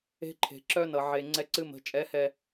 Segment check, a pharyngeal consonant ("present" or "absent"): present